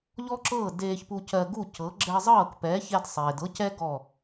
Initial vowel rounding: rounded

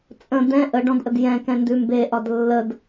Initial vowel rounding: unrounded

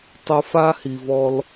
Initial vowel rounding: rounded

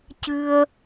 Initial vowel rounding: unrounded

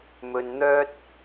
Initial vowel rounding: rounded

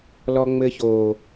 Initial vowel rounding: rounded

